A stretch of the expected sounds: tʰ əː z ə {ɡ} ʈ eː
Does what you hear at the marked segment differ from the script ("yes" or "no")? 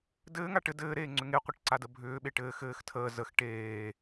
yes